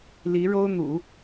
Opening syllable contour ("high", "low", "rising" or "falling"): rising